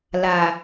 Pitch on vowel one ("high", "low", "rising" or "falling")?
low